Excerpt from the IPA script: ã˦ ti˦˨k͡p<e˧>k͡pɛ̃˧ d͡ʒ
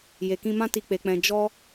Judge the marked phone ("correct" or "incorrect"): correct